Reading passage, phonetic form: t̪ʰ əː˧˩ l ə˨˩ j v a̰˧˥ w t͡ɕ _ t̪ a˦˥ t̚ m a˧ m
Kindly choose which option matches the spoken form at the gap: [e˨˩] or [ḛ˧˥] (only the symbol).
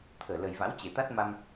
e˨˩